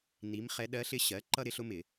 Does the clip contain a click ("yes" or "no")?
yes